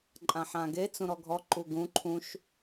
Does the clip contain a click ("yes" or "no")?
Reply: yes